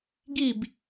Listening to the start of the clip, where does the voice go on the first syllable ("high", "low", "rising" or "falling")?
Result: falling